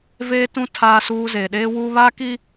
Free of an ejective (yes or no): yes